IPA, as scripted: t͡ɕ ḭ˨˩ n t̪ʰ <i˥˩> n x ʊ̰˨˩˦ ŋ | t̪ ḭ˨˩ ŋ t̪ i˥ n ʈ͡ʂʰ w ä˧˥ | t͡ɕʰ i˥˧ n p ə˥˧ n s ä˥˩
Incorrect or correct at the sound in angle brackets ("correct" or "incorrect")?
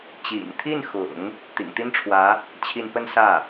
correct